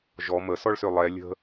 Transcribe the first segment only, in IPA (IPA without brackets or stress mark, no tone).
ʒ